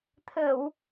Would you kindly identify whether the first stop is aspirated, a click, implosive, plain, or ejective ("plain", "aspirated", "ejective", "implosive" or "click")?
aspirated